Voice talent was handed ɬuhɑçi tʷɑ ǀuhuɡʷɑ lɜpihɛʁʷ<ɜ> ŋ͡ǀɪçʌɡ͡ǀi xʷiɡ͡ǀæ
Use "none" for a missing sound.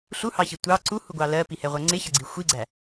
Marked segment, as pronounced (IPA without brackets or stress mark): ɜ